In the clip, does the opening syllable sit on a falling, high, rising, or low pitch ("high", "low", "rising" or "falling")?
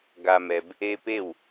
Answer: low